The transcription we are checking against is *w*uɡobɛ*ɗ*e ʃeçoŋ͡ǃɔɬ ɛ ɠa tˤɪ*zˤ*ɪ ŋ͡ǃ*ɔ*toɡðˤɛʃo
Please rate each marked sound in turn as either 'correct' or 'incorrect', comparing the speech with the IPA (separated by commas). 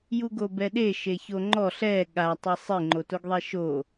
incorrect, correct, incorrect, incorrect